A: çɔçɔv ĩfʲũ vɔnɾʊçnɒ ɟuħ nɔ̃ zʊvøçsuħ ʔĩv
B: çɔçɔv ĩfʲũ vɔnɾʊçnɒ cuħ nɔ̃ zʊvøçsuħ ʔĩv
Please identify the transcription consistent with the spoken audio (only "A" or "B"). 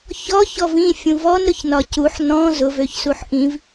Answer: B